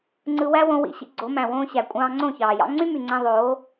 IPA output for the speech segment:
ŋ͡ǀ ɯ˧ w æ˦ w õ˧ w ḭ˧ ɕ ḭ˧ ɡ͡ǀ o˨˦ m æ̃˨ w õː˦ ɕ æ˨ kʷʼ ɑ̃ː˧ ŋ͡ǀ õ˦˨ ç ɑː˨ j ɑ̰˦ ŋ͡ǀ y˦ m y˨ ŋ͡ǀ æ̃˧ ðˤ oː˨˦

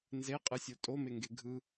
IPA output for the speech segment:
n z e qʼ ɨ sʲ o tʼ o m e ŋ ɡ e ɡʱ ɯ

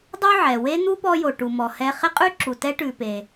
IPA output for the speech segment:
dˤ u˦ ʕ ɛ˩ w e˥ n̪ u˥ p ɔ˦ j o˨ ʈ u˨ m ɔ˨ h ɛ˦ χ ɪ˥ qʼ ʉ˥ ǁ u˨ t ɛ˥ ʈ ʉ˨ p e˨

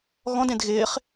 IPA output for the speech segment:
ɣ ɔ̃ d ẽ d ɣ ɪː χ

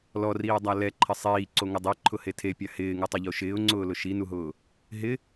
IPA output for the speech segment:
l ɔ r iː dˤ a l ɛ ǃʰ ɪ sˤ iː ǀ o ŋ ʊ dˤ e ǃʰ ʊ h e tʰ e pʲ a h ɪː ŋ u tˤ ʊ ʎ o ʃ ɪː ʊ̯ ŋ͡ǀ ʊː l ʊ ʃ i n u ɦ ʊː | ɦ ɪ

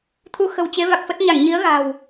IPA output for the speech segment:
t̪ʰ u˨˦ x ə̤˨˩ w t͡ɕ e˨˦ v a˨˩ k̚ f ə˦˥ t̚ ɲ a˧˩ ŋ ɲ i˨˦ ə̯ ɣ a̤˨˩ w

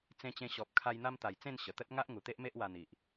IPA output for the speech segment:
t͡s ẽ˧ t͡ɕ ẽ˧ ɕ ɔ˨ p̚ kʰ a˧ j n̪ a˧ m t̪ a˨˩ j t͡s ẽ˥˧ n ɕ ə˨˩ t̪ ə˦ t̚ ŋ a˦ ʔ ŋ u˨˩ t̪ e˦ ʔ m e˦ ʔ w a˧ n̪ i˨ ʔ

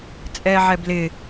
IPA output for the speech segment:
t͡sʼ ɛː ʕ ɛ b l ɪ

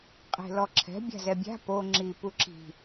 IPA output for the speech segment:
qʼ e̤ l ɔ ǁʰ ɛ̤ bʲ a̤ z ɛ bʲ a̤ p o ŋ͡ǁ i p u ǁ i̤

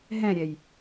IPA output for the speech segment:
ɦ ɛ̃ ɾʲ ɛ j

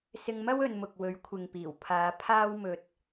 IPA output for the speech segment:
s ɪ˧ ŋ m ɐ˥ w ɵ˧ n m ʊ˨ k̚ w ɵ˨˥ ɥ kʷʰ ɪ˨ ŋ p iː˨˩ w pʰ aː˨˧ pʰ aː˥ w m ɵ˧ t̚

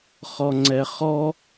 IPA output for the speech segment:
χ ɔ ŋ͡ǀ ɛ χ ɔ

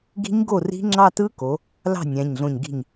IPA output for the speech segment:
ɡ i̤˦˥ ɲ ɡ o˥˩ r i̤˦˥ ŋ͡ǁ ɑ˥˧ t ɯ˦˥ k o˩˧ | l ɑ̤˥˩ nʲ æ̃˩˧˩ ɲ ɮ õ˧˩ ɲ ɡ i̤˧˩ ɲ

